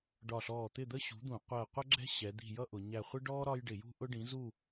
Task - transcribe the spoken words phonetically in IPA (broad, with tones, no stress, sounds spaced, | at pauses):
ɖ ɒ˧˩ ɬ ɔː˧˩ t̪ ɪ˥˨ d̪ ə˥ ɕ ṳ˨˥ d̪ ũ˧˩˧ qʷ ɜ˧˩ qʷ ʌ˥ ɡ͡ǁ ɛ̤˥ ɕ ɛ˩˧ d̪ i̤˧˩ j ʌ˥ ʔ ʊ˩˧ ɲ æ˧˩ χʷ ɪ˥ ɖ ɔː˥ ɾ ɒ˥ j ɖ ɪ˧˩˧ j ṳ˥ ʔ ʊ˥ ɖ ĩ˨˥ z u˥˨